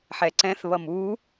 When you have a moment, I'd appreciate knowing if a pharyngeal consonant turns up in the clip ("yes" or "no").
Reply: yes